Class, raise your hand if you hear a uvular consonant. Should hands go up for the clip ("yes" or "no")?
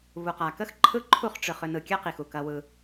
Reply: yes